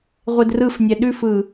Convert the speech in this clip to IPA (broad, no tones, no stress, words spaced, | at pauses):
ʁʷedrɯfnʲɛ ɗʉfɯ